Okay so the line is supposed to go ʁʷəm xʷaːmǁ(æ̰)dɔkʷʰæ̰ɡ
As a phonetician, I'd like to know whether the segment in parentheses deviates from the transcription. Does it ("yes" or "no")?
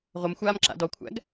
yes